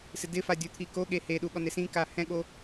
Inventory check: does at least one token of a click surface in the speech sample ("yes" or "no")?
no